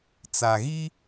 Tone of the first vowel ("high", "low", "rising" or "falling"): low